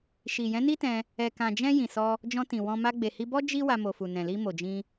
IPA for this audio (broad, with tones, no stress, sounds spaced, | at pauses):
ʃ i˨ j ɛ̃˨˦ n i˦ t ɛ̃˧ | ɛ˨ k ã˨ d͡ʒ ɛ̃˧ j ĩ˨ s ɔ˧ | d͡ʒ ɔ̃˧ t ĩ˨ w ɔ̃˧ m a˧ ɡ͡b e˨ h i˧ b ɔ˦ d͡ʒ i˦ w a˧ m o˨ f u˨ n ɛ̃˨ l i˧ m o˨ d͡ʒ ĩ˧